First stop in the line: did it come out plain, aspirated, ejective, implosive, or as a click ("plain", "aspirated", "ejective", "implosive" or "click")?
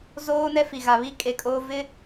ejective